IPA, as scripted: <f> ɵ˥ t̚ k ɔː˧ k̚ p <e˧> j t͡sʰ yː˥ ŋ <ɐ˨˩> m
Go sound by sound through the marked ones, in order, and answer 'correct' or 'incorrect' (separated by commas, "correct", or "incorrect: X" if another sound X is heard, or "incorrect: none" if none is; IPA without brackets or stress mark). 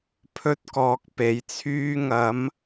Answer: incorrect: pʰ, incorrect: e˨˥, incorrect: ɐ˨˥